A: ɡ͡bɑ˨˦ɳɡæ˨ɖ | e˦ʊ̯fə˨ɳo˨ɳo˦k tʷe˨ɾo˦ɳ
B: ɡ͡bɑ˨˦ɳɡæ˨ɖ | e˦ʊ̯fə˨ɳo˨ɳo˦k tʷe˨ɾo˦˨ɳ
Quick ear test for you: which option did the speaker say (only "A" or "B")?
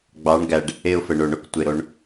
A